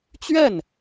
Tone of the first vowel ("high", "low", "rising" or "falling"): falling